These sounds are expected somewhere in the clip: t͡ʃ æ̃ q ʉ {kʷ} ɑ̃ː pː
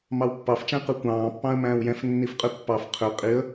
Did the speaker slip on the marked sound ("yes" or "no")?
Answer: no